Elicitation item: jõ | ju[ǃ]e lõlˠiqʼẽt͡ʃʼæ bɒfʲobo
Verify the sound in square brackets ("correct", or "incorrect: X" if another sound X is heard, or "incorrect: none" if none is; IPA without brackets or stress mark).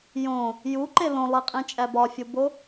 correct